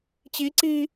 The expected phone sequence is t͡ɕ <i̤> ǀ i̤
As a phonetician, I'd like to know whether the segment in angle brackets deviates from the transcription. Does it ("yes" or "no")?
yes